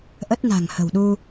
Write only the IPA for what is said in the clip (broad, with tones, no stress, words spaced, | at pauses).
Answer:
ʔə˦˥t̚na̤˨˩ŋ hə̤˨˩wɗu˧